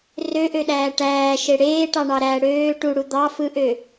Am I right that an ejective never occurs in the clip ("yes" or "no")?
yes